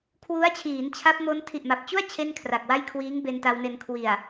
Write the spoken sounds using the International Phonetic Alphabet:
kʰ w u˦˥ a̯ t͡ɕʰ iː˩˦ n t͡ɕʰ a˦˥ p̚ m o˦˥ n tʰ i˨˩ ʔ m a˨˩ p̚ t͡ɕ u˥˩ a̯ t͡ɕʰ e˥˩ n kʰ r a˨˩ k̚ w a˥˩ j kʰ w iː˦˥ ŋ b e˧ n t a˧ w n e˧ n kʰ w i˨˩ a̯

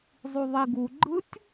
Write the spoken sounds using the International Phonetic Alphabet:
zˤ u ðˤ i ɡ u ɡ͡ǃ ɯ tʲ

